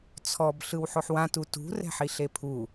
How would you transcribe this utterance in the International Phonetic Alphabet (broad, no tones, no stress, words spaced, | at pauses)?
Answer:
t͡sʰɔb ɬɯwħoħwã tutṳ rɛ̤ħiɬepʰu